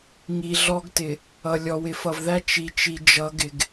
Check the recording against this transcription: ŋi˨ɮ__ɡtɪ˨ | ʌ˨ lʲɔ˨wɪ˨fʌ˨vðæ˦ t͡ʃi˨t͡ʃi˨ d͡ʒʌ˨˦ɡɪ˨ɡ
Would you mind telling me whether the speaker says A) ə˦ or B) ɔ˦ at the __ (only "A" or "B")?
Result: B